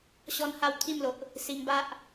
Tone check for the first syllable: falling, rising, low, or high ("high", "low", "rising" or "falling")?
high